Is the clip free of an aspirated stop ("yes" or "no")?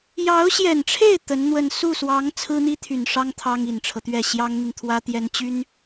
no